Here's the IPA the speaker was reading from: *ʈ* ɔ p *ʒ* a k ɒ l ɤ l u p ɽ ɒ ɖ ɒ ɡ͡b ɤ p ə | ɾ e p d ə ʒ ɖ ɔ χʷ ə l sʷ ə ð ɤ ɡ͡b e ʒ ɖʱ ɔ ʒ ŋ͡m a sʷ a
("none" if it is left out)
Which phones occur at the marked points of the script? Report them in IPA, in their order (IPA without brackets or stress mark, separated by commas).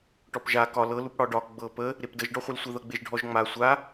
ʈ, ʒ